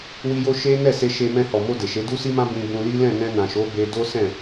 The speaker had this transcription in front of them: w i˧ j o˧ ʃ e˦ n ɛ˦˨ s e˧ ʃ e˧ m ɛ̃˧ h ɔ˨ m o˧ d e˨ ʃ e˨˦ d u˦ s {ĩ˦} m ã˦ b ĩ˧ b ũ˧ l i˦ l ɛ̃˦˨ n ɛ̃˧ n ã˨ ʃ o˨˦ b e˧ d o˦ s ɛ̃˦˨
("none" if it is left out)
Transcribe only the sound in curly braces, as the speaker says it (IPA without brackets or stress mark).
i˦